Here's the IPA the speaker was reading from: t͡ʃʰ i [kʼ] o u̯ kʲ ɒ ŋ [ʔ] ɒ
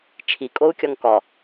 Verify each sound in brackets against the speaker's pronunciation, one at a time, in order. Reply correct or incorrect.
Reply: correct, incorrect: k

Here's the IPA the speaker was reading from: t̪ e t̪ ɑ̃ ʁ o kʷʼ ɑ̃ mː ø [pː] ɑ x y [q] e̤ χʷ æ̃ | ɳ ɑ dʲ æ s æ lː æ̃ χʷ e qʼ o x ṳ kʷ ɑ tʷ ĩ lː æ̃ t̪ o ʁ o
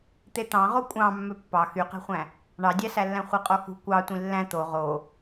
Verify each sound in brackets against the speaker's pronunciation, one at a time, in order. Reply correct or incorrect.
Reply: correct, correct

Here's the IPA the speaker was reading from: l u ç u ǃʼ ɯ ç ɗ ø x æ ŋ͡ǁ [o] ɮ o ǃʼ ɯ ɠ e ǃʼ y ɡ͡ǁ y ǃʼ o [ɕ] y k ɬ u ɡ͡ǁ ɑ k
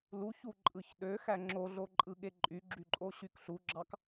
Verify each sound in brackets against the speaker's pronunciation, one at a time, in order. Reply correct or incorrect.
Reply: correct, correct

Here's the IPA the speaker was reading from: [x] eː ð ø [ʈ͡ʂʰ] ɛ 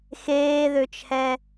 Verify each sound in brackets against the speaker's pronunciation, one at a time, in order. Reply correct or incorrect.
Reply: correct, incorrect: t͡ʃʰ

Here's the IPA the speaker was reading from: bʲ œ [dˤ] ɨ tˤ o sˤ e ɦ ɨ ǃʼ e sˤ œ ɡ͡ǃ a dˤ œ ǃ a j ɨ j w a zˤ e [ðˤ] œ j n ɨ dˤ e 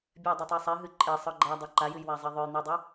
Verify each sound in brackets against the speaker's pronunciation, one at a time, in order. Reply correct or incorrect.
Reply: correct, correct

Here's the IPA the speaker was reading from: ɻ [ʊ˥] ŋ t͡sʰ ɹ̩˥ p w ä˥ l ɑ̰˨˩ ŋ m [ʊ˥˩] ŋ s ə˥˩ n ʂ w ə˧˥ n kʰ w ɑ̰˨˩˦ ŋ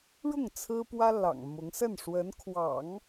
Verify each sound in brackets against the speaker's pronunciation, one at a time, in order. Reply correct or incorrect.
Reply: incorrect: ʊ˥˩, incorrect: ʊ˧˥

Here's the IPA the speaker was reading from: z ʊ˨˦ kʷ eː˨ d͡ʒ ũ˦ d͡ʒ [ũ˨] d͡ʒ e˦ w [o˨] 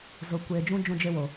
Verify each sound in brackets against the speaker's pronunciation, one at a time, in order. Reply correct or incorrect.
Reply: incorrect: ũ˦, correct

